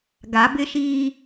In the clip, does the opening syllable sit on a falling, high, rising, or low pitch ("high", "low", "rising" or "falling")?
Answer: rising